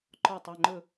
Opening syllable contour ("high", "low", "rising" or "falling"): falling